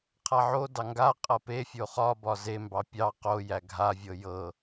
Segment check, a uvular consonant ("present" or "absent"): present